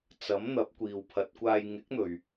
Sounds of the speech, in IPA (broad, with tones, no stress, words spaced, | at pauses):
t͡sɐ˨˥mn̪ɐ˨˥p̚ kʷiː˨wpʰɐ˨˥t̚kʷaː˧j ŋɪ˨˥k̚n̪ɵ˨ɥ